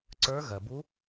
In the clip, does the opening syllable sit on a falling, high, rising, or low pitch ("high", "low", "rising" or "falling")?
rising